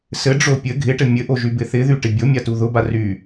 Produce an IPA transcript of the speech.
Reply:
sɘɖ͡ʐo pʲɘ ɡʱɪʈɘ mʲɘʔo ʒybɪθɪðy ʈɪbʲomʲa tuðʊba ry

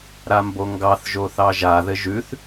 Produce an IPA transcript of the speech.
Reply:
ɾamboŋɡɑθ ʒoθɑʒa ðɘʒʉθ

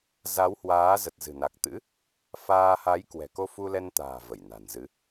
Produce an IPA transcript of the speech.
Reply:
za˨˦whwaː˨˦zə˨˩t̚ zɨ̤˨˩na˨˩k̚t̪ɨ̰˧˥ | faː˧ ha˨˦jkwɛ̤˨˩ ko˧fu˧lɛ˧nt̪a̤ː˨˩ və˧˩jna̤˨˩nzɨ˨˦

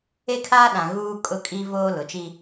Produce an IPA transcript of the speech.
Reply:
e˦kʰaː˦ɗã˨ ɣuː˦kʼʊ˦kʼi˦voː˦ lʊ˨t͡ʃi˦

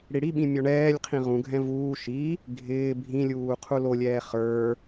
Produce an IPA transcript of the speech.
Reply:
ɽiɽiɓĩ mʲɔɳɛːlʲqʰĩ ʁũɡʱɛ̃ vuː ʃi | ɡʱɪː bʱĩlʲuː qʰulolʲɛː χə˞

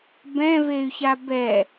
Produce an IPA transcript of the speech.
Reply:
bɛ̃vey̯ça bɛ

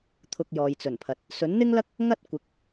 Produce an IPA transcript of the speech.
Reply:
t̪ʰʊ˧k̚jɔː˨jt͡sɵ˨˩npʰɐ˨t̚ | sɵ˨˥nn̪ɪ˥ŋlɐ˥k̚ | ŋɐ˥t̚ kʷɪ˨˥k̚

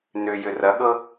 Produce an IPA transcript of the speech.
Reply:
nʏjʏ rɐɠɤ

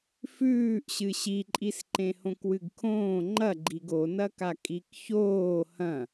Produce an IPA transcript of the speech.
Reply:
fʉːʔɕɨ ɕiǃʼisǃẽhõk wɨɡkʰõː ŋ͡ǃɐɡ͡ǃiɡ onɐka kʼikçoː hɐ̃

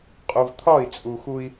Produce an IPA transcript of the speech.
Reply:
qʼu˨vt̪ʰɒ˦˨i̯t͡sʼu˨xu˦i̯

